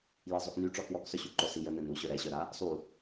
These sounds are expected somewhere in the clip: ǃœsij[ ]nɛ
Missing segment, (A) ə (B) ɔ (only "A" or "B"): A